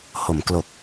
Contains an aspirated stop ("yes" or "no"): no